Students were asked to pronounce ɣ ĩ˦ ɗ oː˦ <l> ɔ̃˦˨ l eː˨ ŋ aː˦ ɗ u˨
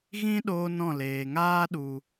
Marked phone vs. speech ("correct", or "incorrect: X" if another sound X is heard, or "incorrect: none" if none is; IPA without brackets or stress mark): incorrect: n